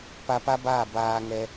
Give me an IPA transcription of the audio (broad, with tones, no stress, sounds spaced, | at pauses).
p a˧ p a˦ b aː˦˨ b aː˧ ŋ ɛ˧